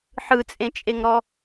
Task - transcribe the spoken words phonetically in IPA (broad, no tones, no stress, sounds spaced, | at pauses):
ħ ɯ t͡sʼ ẽ t͡ʃʼ e ŋ ɾ ɔ